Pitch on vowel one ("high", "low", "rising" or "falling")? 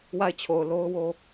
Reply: falling